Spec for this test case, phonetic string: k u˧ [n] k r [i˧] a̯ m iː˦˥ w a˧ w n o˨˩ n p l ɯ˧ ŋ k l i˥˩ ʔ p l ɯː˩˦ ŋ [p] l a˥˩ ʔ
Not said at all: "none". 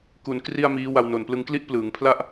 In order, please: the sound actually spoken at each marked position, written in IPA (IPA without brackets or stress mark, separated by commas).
n, i˥˩, pʰ